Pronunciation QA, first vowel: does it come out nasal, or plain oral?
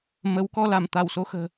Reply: oral